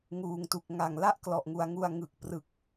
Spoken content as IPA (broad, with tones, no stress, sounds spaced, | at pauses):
ŋ uː˨˩ ŋ t u˨˩ k̚ ŋ a˨˩ ŋ l a˥˩ ʔ k l ɔ˨˩ ʔ ŋ u˧ a̯ ŋ u˧ a̯ ŋ ɯ˨˩ k̚ p r ɯ˨˩ k̚